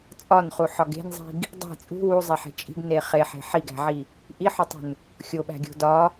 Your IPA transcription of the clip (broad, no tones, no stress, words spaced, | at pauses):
t͡sʼɒnχuħɒ ɡe̤nzˤi̤ɡ | dˤi̤ t͡sʼṳ wuzˤeħe̤ t͡ʃʼi̤ɡne χeħe̤ ħiɡæ̤ʕi | ʔiħotˤṳn | xʲoɓæ̤ɡʲo̤ dɒ